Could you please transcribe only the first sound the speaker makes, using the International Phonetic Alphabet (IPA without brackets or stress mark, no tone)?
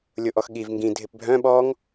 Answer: lʲ